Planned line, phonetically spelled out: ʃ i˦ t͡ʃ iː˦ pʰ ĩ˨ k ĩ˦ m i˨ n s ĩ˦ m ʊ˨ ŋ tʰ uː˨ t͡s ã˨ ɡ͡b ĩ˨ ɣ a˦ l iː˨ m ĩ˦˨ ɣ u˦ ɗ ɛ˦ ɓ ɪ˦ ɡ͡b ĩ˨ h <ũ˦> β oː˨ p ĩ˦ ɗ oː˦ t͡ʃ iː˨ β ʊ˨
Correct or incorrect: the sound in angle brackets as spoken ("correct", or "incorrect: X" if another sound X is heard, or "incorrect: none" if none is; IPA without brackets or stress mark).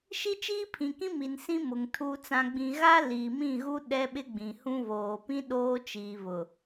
correct